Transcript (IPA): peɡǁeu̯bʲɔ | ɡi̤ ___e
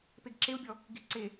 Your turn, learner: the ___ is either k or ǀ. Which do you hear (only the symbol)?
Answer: ǀ